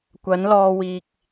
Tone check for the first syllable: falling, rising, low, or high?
rising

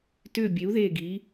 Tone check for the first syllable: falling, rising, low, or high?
falling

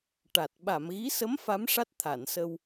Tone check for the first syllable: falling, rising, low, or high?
low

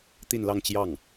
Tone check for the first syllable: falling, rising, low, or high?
falling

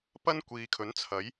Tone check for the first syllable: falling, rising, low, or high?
high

